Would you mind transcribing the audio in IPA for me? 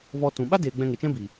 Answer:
vɔ˧tũ˨ ɓa˦deː˨ ɡ͡bɛ̃˧ŋe˨t͡ʃɛ̃˦bi˨

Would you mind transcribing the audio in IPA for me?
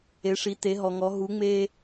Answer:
e˨˥ʂi˨˥ te˨˥ɦɔ˨ŋɔ˨˥ ɦu˨˥ŋ͡me˦

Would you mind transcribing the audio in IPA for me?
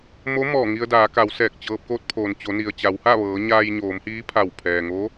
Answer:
mo˧˥ mɔː˧˩ŋi˧ə̯daː˩˧ka˩˧w sɛː˧˩k̚t͡ɕɤː˧p̚ ko˧t̚pʰoː˩n t͡ɕo˩˧ni˩ə̯ t͡ɕa˩˧wha˥˨ʋɤː˩˧ ɲaː˧jɲoː˩˧mhiː˧˥ pʰa˧˩wpʰɛː˩ŋo˧˥

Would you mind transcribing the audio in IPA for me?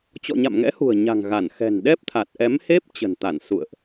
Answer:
t͡ɕɔ̰˧˨ɲa̰˧˨mŋɛ̰˧˥hṳ˨˩ə̯ ɲa̤˨˩ŋ ɣa˧˩n xɛ̤˨˩nɗɛ˦˥p̚t̪ʰa˨˩t̚ ʔɛ˨˦mhe˦˥p̚ t͡ɕə̤˨˩nt̪a˧˩n sṵ˧˨ə̯ʔ

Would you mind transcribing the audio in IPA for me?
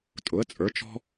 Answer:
tʼʊ˩˥ə̯t͡sʼə˞˩˥ t͡ʃɔ̤˥

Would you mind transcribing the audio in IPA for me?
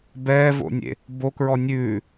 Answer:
bɛːvo̰nʲḛ | bokɹɔ nʲʉː

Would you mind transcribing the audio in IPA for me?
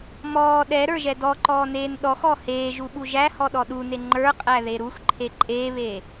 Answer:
mɔː ɗɛɾə˞ʒɛ dɔǃɔːneːn ɗɔxɔ heːʒuɓu ʒæhɔɗɔ ɗune ŋ͡ǃə˞qʼæðe ɾuxǃʰe ǃʼeːβeː

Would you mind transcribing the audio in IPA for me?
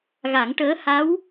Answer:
ɣa˨˩˦ŋʈəː˧˥ ha˧˥w

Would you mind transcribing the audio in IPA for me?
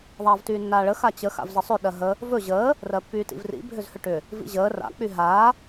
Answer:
ðˤaːvtyːnːaːɭə xat͡ɕə xa̰vzəsˤʏ ɗɜɦə | vɵ ʑəː | rɜpːyːtḭvrḭ bʱʏzhʏʈʏ | vḭʑəː ra̰ k͡pyɦaː

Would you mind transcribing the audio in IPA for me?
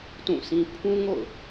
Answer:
tũ˦˨sʰĩ˦ pʰũ˦ŋo̰˦˨ʊ̯

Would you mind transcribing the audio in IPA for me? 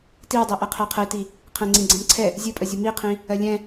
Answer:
tiwdˤɜʔɛ qʰɜqʰəi̯ti | qʰɛ̃ŋ͡ǀĩɡ͡ǀɛ̃mǀʰɛ | zʲɨpʼəzʲə miqʰĩ | ɜlʲɛ̃

